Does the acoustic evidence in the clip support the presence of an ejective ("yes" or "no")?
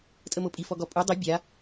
yes